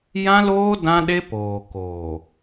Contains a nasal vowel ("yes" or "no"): yes